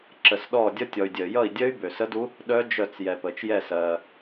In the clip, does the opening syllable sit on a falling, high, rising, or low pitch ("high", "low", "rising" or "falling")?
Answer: low